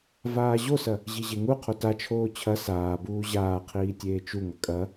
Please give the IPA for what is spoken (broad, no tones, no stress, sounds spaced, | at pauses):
v aː ʑ o s ɐ | ʑ i ʑ e ŋ u qʰ o t a t͡ʃʰ oː t͡ɕʰ ɐ s aː b uː ʑ aː qʰ iː tʲ eː t͡ʃ u ŋ ɐ kʼ ɐ